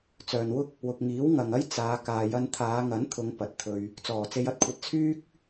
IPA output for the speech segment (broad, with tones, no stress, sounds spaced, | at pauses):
t͡s œː˨ n w ʊ˥ k̚ | w ʊ˨ k̚ ŋ iː˨˥ w ŋ ɐ˨ ŋ ɐ˥ j t͡s aː˨˧ k aː˨ j ɐ˧ n t̪ʰ aː˨˧ ŋ ɐ˨˥ n t̪ʰ ʊ˨˧ ŋ p ɐ˨ t̚ t̪ʰ ɵ˧ ɥ | t͡s ɔː˨˩ t͡s e˧ j ɐ˧ t̚ kʷʰ ɐ˧ t̚ t͡sʰ yː˥ k̚